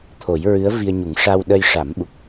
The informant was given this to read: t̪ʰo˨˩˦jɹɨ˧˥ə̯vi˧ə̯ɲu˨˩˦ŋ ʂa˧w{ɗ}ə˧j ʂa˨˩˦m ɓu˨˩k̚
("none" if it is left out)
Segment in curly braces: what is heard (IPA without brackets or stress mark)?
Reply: ɗ